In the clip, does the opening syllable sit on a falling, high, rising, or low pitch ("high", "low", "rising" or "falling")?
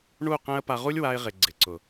falling